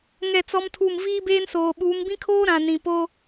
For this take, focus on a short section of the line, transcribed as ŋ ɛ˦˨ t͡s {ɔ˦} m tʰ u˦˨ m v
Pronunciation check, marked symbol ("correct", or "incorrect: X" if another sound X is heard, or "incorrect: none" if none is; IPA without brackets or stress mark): correct